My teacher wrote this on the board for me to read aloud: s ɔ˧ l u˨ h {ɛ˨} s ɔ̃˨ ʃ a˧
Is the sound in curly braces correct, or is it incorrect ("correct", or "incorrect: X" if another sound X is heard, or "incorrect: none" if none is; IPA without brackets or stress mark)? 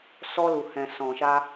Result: incorrect: ɛ̃˨